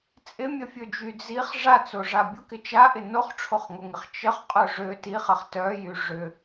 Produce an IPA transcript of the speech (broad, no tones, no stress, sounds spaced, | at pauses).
t͡sʼ ɪ mʲ ə fʲ ø d͡ʒ y d͡z i χ ʐ a t͡s o ʐ a bʲ ʊ k ɪ t͡ʃ a ʔ ɪ n o χ ʈ͡ʂʰ o χ ŋ o ŋ ɪ χ t͡ʃ ə χ qʼ œ ʐ ø t i χ ɐ χ t œ j y ʐ ʏ